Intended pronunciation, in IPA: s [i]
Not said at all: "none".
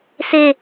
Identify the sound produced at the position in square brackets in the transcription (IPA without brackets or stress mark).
e